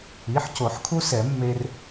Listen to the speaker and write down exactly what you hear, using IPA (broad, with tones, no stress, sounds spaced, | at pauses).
i˩˧˩ ħ c o˨˩˦ ħ kʰ u˧ s ɛ˨˩˦ mː e˧ r